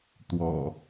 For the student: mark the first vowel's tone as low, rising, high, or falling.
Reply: low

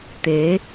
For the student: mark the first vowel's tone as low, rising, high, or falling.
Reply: rising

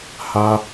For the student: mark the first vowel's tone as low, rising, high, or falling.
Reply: high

